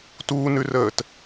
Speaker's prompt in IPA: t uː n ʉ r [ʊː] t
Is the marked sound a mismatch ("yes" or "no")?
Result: yes